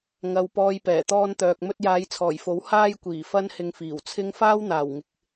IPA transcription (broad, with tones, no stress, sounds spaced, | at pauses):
ŋ ɐ˨ w p ɔː˧ j p ɛː˨˩ t̪ ɔː˧ n t̪ œː˨ k̚ m ɵ˧ t̚ j aː˨˧ j t͡sʰ ɔː˨˩ j f o˨˥ w h aː˥ j kʷ iː˨˩ f ɐ˥ n h ɪ˧ ŋ f iː˨˩ w t͡sʰ ɪ˥ ŋ f aː˥ w n̪ aː˨˩ w ŋ ɪ˨ k̚